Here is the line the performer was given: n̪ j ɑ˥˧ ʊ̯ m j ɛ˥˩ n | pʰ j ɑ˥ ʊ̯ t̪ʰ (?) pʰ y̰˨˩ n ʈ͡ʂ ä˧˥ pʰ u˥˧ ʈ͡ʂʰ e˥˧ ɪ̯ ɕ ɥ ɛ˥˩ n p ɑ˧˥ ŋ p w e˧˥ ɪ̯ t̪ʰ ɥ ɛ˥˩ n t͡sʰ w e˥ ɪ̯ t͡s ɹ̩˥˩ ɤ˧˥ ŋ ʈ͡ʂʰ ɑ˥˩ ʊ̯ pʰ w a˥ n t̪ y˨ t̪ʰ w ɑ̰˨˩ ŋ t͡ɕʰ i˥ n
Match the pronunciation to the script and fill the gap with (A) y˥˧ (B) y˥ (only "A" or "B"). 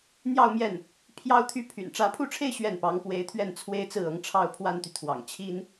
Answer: B